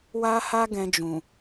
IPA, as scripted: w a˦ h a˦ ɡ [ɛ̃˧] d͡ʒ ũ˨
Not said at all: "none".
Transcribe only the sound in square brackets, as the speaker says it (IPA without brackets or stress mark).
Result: ɛ̃˧